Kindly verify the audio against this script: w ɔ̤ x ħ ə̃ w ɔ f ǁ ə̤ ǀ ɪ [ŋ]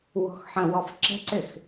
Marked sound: incorrect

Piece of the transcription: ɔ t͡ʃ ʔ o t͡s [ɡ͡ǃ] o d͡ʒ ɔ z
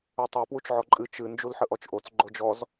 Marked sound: correct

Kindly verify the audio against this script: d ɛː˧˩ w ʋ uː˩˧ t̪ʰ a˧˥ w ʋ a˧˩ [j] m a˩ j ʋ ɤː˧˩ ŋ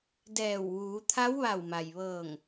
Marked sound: incorrect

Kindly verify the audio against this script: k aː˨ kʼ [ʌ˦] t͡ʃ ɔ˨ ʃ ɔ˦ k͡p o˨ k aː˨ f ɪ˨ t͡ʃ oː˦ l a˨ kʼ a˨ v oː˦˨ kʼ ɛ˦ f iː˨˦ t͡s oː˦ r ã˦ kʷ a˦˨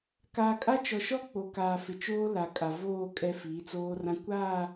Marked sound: incorrect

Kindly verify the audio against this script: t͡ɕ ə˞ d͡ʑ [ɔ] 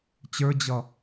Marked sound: incorrect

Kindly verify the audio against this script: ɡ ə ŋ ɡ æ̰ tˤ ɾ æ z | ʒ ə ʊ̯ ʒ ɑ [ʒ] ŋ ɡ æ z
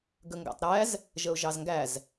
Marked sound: incorrect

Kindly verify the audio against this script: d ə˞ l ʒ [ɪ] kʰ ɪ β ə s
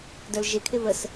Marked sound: correct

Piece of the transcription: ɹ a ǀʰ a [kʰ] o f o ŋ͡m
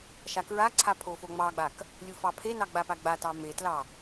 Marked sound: incorrect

